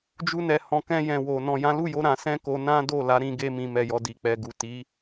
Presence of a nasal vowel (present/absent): present